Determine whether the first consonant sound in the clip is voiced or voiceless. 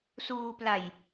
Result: voiceless